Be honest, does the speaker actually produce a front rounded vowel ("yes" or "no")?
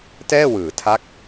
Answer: no